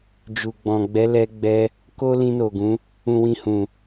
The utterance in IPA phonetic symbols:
d͡ʒu˨ɡ͡bɔ̃˨ ɡ͡bɛ˨˦lɛ˧ɡ͡bɛ˧ | ko˦ lĩ˧no˨ɡũ˨˦ | ũ˨wĩ˨ hũ˨

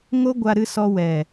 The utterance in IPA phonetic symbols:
ŋo˦ ɡʷa˧ɾɨ˧ sɔ˧ wɛ˨

